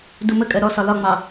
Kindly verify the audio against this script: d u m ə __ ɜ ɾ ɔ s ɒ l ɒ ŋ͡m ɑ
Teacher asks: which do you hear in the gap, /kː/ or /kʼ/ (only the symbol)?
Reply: kʼ